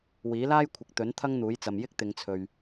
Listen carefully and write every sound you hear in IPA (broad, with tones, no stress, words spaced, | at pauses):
wiː˨˥laː˥jkʷʰɪ˨k̚ t̪ɵ˨˥n t̪ʰɐ˥ŋn̪uː˨˥jt͡sɐ˨m jɪ˥k̚t̪ɪ˨˧ŋt͡sʰɵ˨ɥ